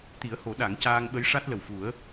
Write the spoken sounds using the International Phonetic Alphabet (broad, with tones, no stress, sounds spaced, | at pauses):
t̪ i˨˩˦ ə̯ h o˨˩˦ ɗ a˨˩˦ ŋ c aː˧ ŋ ɓ ə˧˥ j ʂ a˦˥ t̚ l ə˨˩ w f u˨˩˦ ə̯